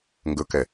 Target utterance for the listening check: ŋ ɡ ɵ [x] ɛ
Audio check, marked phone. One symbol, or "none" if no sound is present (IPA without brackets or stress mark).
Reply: k